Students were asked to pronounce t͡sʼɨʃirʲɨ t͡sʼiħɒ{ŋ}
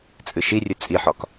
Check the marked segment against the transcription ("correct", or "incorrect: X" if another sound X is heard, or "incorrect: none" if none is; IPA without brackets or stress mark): incorrect: k